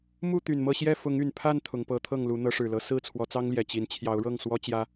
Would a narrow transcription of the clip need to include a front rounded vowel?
yes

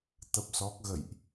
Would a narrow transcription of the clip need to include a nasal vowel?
no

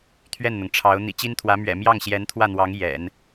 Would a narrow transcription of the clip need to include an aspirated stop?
yes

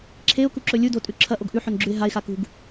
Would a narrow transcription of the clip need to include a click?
yes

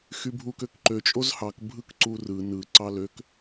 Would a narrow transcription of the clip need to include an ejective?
yes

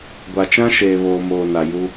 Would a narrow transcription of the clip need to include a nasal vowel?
yes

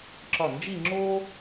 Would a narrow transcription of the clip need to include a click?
yes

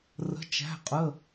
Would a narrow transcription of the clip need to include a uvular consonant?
yes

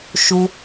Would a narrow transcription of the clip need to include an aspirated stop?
no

